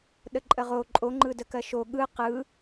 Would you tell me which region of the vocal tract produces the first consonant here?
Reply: tongue tip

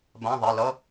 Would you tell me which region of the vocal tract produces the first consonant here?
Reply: lips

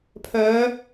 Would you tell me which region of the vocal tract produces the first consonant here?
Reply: lips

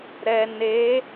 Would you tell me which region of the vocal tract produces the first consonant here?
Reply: tongue tip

